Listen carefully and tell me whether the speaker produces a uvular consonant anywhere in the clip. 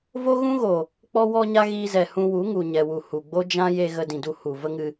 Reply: no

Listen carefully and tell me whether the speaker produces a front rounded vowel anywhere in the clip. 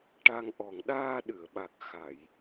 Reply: no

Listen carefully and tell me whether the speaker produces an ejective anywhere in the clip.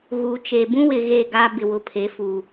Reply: no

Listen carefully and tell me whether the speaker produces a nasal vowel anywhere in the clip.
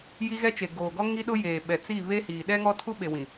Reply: yes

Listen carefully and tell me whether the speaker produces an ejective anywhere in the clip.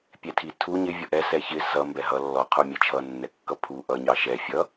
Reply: no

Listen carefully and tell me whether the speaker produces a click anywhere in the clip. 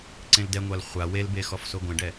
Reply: yes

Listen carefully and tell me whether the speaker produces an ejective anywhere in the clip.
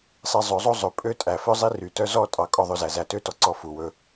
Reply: yes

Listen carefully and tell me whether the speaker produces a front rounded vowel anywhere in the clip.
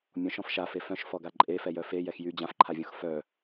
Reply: yes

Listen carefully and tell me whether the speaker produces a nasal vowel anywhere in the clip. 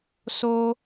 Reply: no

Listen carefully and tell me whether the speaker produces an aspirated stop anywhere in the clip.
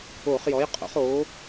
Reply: no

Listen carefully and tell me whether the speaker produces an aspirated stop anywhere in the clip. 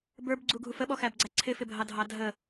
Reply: yes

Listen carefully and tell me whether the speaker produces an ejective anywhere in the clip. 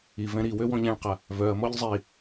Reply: no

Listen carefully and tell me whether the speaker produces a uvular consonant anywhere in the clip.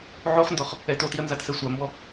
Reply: yes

